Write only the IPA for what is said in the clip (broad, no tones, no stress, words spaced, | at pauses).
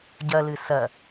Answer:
ɟɐlɨ sɐ